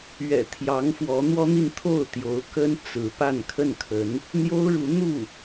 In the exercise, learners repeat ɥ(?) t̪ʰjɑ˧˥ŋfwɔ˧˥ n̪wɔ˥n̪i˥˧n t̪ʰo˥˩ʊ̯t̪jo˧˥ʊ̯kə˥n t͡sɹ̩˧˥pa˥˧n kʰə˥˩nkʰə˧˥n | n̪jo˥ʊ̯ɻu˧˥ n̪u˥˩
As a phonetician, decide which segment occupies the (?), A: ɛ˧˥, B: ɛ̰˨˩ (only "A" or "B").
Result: B